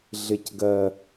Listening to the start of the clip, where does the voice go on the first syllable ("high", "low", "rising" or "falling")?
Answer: low